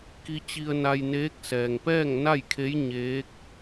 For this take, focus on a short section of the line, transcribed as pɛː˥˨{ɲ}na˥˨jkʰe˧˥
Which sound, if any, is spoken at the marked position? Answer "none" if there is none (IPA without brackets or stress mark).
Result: ŋ